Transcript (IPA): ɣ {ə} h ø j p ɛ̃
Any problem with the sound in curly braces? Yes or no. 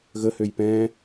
no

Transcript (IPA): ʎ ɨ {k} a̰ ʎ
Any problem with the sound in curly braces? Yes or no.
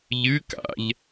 no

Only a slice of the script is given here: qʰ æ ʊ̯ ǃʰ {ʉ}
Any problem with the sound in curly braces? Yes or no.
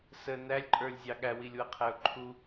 yes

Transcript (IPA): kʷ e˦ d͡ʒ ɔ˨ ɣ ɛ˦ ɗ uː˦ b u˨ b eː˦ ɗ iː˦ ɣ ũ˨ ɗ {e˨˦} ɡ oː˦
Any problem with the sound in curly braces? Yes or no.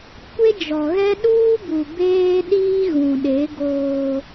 no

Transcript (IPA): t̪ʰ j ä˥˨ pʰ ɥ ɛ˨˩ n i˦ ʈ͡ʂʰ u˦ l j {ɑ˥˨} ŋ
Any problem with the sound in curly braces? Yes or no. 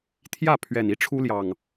yes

